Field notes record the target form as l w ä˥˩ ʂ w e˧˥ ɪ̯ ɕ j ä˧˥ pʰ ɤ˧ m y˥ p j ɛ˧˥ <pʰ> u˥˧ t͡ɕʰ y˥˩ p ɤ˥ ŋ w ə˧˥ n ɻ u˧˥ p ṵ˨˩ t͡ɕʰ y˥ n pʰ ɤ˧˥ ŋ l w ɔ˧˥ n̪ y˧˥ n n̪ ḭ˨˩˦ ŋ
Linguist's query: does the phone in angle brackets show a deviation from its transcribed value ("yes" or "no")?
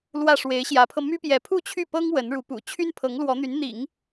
no